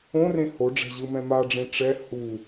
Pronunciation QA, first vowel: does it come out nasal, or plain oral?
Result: nasal